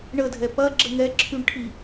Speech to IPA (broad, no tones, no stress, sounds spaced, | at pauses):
ɳ ə dʱ ɛ p ɐ ɡ͡ǁ ə ŋ ɛ ǁʰ y ɳ ʈʰ i